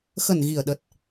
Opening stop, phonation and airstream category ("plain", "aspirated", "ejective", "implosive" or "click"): implosive